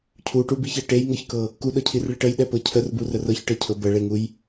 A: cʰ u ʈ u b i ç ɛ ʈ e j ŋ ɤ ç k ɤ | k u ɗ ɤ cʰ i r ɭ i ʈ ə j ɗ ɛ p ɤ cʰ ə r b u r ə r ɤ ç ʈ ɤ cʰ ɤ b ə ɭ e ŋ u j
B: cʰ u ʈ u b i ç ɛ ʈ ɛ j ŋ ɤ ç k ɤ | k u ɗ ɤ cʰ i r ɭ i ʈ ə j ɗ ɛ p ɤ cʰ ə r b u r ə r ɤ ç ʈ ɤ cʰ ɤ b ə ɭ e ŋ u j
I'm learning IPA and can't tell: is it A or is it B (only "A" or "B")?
A